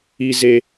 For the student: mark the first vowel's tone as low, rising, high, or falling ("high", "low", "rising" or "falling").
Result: low